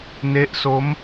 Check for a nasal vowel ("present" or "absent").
absent